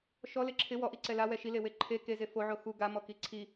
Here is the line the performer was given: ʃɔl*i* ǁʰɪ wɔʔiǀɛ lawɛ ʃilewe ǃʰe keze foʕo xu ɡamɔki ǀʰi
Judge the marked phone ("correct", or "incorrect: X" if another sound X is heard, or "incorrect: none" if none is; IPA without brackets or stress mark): incorrect: ɪ